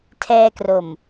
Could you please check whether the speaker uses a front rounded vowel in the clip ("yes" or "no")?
no